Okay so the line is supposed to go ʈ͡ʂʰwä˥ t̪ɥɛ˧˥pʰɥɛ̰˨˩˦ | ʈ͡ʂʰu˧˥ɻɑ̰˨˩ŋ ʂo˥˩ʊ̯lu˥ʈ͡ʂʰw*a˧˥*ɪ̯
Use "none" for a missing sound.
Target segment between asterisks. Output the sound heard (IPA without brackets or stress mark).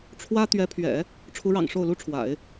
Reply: a̰˨˩˦